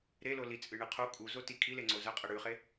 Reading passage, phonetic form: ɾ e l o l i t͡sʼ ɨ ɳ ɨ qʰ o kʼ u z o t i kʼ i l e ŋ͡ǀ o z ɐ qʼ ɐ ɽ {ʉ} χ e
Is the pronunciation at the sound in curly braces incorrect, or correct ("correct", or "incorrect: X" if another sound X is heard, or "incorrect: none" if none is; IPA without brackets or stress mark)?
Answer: correct